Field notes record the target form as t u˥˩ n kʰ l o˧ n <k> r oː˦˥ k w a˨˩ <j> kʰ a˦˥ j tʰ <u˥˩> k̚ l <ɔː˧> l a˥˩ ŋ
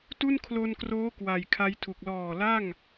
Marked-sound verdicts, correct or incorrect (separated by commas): correct, correct, incorrect, incorrect